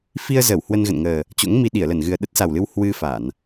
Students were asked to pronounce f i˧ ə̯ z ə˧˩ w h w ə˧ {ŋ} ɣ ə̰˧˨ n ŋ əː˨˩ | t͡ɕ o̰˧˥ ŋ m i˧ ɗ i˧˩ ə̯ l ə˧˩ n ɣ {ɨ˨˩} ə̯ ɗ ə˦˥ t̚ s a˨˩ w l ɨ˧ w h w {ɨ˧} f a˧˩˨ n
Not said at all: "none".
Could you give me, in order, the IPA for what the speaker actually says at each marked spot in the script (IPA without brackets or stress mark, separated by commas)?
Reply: n, ɨ˨˩, ɨ˧